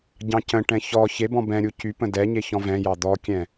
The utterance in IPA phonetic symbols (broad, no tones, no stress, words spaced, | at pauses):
ɟɑ̃cə̃ʈɛ̃ çɔ çebɔ̃ bɛ̃ ɾʲucypə̃ dɛɲe çɔ̃vɛ̃jɑ d̪ɔkʲɛ̃